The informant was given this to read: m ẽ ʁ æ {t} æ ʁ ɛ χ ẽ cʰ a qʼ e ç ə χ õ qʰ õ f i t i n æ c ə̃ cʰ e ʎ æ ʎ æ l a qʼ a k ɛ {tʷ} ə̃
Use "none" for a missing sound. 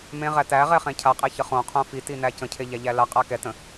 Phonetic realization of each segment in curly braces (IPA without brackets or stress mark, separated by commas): t, t